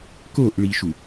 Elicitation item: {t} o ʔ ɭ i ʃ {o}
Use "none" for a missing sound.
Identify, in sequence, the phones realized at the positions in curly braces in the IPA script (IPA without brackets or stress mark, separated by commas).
k, u